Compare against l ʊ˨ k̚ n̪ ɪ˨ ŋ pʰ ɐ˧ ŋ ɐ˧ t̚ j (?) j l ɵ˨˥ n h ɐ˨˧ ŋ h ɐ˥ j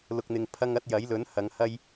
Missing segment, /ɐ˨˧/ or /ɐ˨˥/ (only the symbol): ɐ˨˥